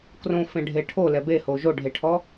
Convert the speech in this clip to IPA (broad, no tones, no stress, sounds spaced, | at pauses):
k r õ f ẽ ɖʱ e ʈʰ o l ɛ b e h o ʒ o ɖʱ e ʈʰ ɔ